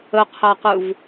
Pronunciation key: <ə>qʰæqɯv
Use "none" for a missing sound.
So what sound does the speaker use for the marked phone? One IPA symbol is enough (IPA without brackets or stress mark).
ə